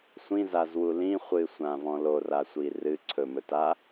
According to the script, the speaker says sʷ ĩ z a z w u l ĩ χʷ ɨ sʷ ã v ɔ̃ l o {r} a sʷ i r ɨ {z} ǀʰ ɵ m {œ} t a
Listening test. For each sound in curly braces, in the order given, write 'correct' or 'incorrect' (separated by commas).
correct, incorrect, incorrect